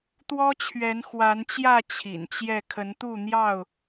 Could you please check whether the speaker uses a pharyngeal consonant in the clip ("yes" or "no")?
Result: no